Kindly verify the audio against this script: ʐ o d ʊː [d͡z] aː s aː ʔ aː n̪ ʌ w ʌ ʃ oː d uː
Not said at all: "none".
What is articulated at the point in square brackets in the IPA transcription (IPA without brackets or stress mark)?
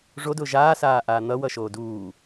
ʒ